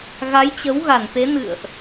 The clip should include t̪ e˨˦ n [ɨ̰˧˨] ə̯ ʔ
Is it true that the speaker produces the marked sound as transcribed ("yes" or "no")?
yes